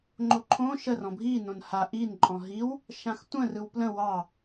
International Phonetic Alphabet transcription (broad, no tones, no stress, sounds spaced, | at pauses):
ŋ͡ǃ o ǃʰ õ ʃ ə r ɔ̃ bʱ i n õ n h a ʔ i n ǃʼ ɔ̃ ɦ i w | ʃ ã x tʷ ə̃ r ɯ w p l ə̃ w ɑ